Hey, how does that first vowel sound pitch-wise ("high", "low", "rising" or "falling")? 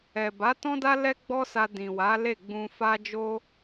low